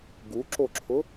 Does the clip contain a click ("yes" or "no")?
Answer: yes